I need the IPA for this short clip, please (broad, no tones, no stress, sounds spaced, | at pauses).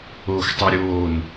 oː x tˤ y ɾʲ oː n